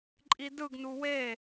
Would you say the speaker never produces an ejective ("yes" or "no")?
no